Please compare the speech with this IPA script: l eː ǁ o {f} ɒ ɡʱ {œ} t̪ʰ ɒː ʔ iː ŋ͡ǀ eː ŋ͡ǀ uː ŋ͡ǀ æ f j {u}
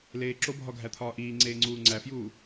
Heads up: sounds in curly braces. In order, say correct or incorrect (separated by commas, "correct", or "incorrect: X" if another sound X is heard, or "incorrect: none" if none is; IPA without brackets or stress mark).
incorrect: bʱ, incorrect: æ, incorrect: uː